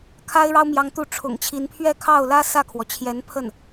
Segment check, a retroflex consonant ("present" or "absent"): present